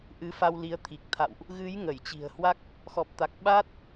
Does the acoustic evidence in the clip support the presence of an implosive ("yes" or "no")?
yes